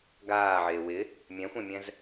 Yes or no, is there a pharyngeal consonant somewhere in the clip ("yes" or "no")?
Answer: yes